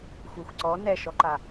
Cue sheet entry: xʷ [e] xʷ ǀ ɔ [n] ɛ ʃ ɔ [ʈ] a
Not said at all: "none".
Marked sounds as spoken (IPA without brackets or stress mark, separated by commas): ɛ, n, ǃ